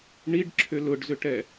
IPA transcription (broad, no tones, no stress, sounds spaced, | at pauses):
ɳ i ɖ ǁʰ ʏ l ʊ ɖ z ʏ ʈ ɛ